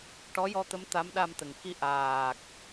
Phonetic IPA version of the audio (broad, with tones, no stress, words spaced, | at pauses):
ʈɔ˧˥jɔ˧t̪ə˧˥m t̪a˧˥mɗa˧m t̪ə˨˩ŋki˧ ʔaː˨˩k̚